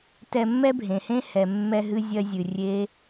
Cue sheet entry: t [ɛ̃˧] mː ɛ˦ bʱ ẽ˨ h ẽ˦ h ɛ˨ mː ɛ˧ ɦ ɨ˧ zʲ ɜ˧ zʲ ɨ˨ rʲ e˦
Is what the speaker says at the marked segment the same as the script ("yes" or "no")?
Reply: no